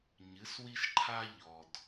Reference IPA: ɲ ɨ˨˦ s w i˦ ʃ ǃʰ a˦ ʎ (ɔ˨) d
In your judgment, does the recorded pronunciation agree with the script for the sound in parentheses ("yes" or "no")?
yes